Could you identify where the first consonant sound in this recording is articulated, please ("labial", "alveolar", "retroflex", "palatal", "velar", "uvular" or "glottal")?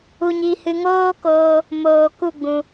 palatal